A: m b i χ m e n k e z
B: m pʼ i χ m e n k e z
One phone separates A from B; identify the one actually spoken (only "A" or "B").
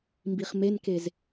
A